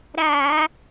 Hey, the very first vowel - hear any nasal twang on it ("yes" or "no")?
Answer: no